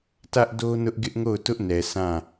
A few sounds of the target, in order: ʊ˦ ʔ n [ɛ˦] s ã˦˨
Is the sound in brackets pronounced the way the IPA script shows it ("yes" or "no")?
no